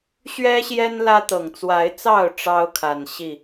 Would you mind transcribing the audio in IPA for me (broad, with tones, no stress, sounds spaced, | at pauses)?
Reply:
ɕ ɥ ɛ˦ ɕ j ɛ˦ n l ä˦ t̪ ɤ˨˩ ŋ t͡s w a˨˦ ɪ̯ t͡s ɑ˥˨ ʊ̯ ʈ͡ʂ ɑ˦ ʊ̯ kʰ a˨˩ n ɕ i˥˨